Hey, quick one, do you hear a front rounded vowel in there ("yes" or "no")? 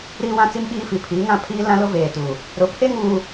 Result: no